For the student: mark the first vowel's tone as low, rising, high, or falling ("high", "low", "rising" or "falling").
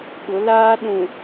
rising